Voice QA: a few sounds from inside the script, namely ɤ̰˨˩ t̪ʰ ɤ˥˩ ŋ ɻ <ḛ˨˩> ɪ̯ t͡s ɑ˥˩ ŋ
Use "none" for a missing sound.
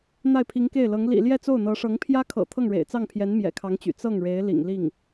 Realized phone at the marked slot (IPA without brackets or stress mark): ḛ˨˩